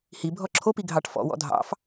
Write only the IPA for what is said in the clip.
hi bʱɔǁʰopi ɡʱɑʈfɔ̰wɔ̰ dʱɑ̰f

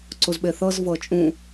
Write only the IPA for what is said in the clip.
ǀuzɓeθɤz vɤt͡ʃʼũ

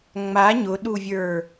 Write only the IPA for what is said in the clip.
ŋ͡ma ɲʊɗuvʲə˞

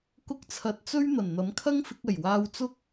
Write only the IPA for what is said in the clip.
kʊ˧k̚t͡sʰɐ˨˥t̚t͡sɵ˥ɥ n̪ɐ˨˩nn̪ɐ˨˥mkʰɐ˥ŋfɪ˨˥k̚ ɐ˨˩jwaː˧wt͡sʊ˥k̚

